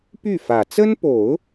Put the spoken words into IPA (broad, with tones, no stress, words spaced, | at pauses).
py˥˩fä˨˩ t͡sə˥npo˨˩˦ʊ̯